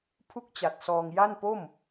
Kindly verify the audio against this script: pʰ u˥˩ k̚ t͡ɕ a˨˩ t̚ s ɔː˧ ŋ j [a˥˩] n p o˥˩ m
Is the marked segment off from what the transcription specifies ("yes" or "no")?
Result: no